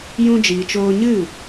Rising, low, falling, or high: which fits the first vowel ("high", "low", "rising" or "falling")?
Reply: high